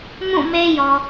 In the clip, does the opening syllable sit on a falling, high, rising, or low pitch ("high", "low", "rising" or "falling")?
falling